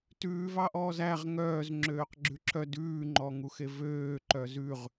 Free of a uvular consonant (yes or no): no